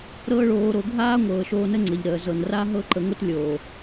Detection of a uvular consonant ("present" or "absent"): absent